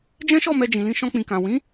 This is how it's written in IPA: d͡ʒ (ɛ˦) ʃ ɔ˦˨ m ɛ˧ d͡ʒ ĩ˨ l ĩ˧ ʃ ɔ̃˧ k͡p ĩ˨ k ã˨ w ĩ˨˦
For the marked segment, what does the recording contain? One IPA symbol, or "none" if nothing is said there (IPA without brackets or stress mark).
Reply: ɛ̃˦